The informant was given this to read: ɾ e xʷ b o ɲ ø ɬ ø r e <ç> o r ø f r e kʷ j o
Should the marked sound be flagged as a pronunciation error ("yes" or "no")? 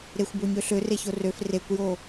no